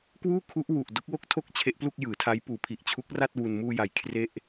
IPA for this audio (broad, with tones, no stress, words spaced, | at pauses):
kwuː˥˩ kʰu˦˥ʔ wu˨˩ʔ do˦˥k̚wo˥˩k̚tʰo˥˩k̚ t͡ɕʰe˦˥ʔplu˥˩k̚jɯː˩˦tʰa˦˥j puː˩˦pʰi˨˩ʔ t͡ɕʰu˦˥k̚ra˥˩t̚ wu˧n muː˧ja˩˦j kʰre˥˩ʔ